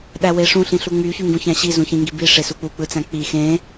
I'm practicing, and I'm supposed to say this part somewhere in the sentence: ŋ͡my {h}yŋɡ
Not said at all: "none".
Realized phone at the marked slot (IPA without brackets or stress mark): ç